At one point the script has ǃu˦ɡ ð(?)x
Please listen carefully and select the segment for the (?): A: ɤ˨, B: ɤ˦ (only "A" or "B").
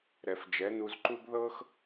B